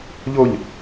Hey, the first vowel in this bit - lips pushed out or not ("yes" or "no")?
yes